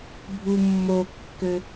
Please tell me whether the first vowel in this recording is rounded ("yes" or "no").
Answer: yes